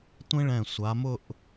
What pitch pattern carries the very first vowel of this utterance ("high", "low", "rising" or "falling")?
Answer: high